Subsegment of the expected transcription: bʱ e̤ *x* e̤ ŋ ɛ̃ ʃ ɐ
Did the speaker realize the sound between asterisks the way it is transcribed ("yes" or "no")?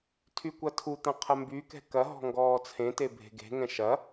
no